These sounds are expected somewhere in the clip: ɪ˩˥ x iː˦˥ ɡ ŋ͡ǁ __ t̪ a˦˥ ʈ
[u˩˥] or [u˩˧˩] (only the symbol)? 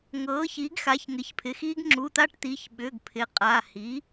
u˩˧˩